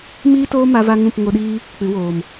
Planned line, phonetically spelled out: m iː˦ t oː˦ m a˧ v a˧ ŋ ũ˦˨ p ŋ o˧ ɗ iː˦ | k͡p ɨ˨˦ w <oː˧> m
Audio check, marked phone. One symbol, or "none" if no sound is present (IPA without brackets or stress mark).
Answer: oː˨